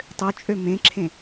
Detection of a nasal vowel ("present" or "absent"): present